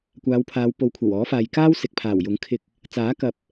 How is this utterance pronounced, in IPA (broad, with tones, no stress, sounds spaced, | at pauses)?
kʷ aː˨˧ w pʰ aː˨˧ w p o˨˧ w kʷʰ ɐ˨˩ w ɔː˨˥ f aː˨ j k aː˥ w s ɪ˨ k̚ pʰ aː˨˩ w j ʊ˨˥ ŋ kʰ ɪ˧ k̚ | t͡s aː˨˥ k ɐ˨˥ p̚